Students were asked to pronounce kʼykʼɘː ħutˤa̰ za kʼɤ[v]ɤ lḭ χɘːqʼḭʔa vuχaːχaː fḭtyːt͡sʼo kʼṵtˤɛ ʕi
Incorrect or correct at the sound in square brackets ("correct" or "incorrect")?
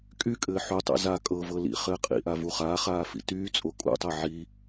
correct